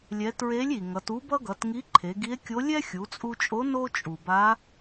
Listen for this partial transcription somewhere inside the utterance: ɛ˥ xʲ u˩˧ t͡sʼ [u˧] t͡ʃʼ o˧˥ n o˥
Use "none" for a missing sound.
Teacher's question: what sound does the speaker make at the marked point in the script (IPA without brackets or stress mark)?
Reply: u˧